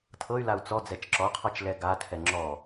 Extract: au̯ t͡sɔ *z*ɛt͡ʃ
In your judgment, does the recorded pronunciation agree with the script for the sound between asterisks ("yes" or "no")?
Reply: no